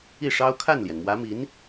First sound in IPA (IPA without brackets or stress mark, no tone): i